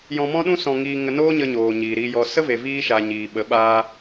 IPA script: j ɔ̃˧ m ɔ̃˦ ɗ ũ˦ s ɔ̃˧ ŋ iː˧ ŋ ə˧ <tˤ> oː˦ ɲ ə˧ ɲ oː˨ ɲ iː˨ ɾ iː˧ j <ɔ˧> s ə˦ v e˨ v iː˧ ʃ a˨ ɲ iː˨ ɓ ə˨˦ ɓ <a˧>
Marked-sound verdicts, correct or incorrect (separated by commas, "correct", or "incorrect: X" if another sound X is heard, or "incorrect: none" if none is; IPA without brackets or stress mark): incorrect: n, correct, incorrect: aː˧